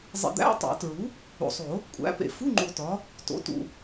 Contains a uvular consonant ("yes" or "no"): no